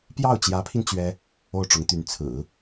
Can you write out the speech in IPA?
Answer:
p j ɑ˥˩ ʊ̯ t͡ɕ j ä˧˥ pʰ i˧ n t͡ɕ ɥ ɛ˥ | o˥˩ ʊ̯ ʈ͡ʂ ʊ˧˥ ŋ t̪ y˧˥ n t͡sʰ ɹ̩˨˩˦

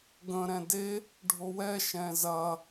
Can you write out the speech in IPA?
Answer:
ɡ ə̃ ɾ ɛ̃ d e | ɖʱ o w ɛ ʃ ɛ̃ z ɐ

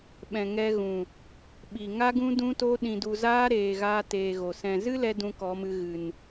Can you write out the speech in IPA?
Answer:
ɓ ɛ̃˨ ŋ ɛ˧ ɣ ũ˨ | ɓ i˨ ŋ a˦ ɡ ũ˦ d ũ˦ t o˦ ɗ ĩ˧ d u˧ z aː˦ ɾ eː˨ ɣ aː˧ t eː˧ ɣ o˨ s ɛ̃˨ z ɨ˦ l ɛ˧ d ũ˦ k ɔ˨˦ m ɨ˧ ɣ ɨ˨ n

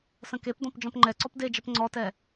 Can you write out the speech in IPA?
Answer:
s ə̃ k e p d ɔ̃ p d͡ʒ ɔ̃ p ŋ͡ǃ ɛ ǀ ɔ p d e d͡ʒ ə p ŋ͡ǀ ɔ t ɛ

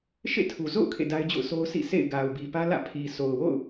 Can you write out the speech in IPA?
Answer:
ʃ ḛ˦˨ tʰ u˨ z o̰˦˨ ʊ̯ kʰ ḛ˦˨ d a˦ ɪ̯ d͡ʑ o̰˦˨ ʊ̯ s o˦ ʊ̯ s ḭ˦˨ sʰ ḛ˦˨ ɪ̯ ɡ a˨ ʊ̯ b i˨ p ä˦ l ä̰˦˨ pʰ i˨ s o˨ ʊ̯ w o̰˦˨ ʊ̯

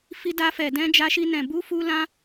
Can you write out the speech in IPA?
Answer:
f i˦ d a˦ f ɛ˧ d ɛ̃˦ d͡ʒ a˦ ʃ i˦ n ɛ̃˧ b u˦ f u˦ l ã˦

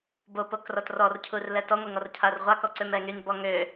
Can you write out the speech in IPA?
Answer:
b o p o k r ɔ t r ɔ r cʰ u r l ɛ t ɔ ŋʷ e ŋ ɔ r cʰ a r ʁʷ a k ɔ ǀ ø m ɛ ŋ y n b ɔ ŋ ø

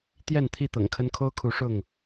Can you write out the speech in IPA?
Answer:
t̪ j ɛ˥˨ n t̪ʰ i˥˨ t̪ ɤ̰˨˩ ŋ kʰ ə˦ n kʰ o˦ ʊ̯ kʰ u˨˦ ʂ ʊ˥˨ ŋ

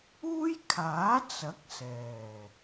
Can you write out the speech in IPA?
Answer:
uː˥ j kʰ aː˨˥ t͡s ɐ˨˥ k̚ s ɛː˨˩

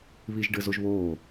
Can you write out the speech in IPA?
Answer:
β i ʒ ɖ ɘ z o ʒ β oː

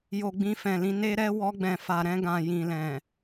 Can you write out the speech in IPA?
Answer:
j o˨ ɡ͡b ĩ˧ f ɛ̃˨ l ĩ˧ n e˧ ɾ ɛ˧ w ɔ˧ ɡ͡b ɛ̃˨ f a˨ ɾ ɛ̃˧ ɡ ã˨ j ĩ˨ l ɛ̃˨

